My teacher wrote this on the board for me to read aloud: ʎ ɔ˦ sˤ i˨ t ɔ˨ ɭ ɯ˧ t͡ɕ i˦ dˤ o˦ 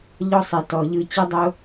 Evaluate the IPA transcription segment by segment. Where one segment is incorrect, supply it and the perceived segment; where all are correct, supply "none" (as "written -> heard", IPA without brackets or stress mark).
ɭ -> ʎ